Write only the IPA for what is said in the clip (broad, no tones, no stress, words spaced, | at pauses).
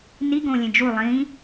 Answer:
niɡõːlʲẽ d͡ʒu lˠĩ